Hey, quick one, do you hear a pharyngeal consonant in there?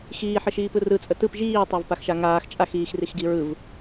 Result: yes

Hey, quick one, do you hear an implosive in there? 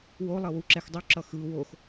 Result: no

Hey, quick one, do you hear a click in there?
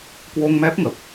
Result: no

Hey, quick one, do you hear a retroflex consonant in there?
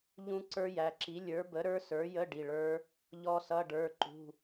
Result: yes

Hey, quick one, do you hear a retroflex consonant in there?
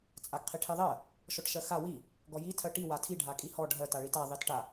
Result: yes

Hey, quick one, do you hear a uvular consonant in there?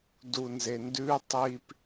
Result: no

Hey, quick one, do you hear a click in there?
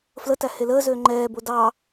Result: yes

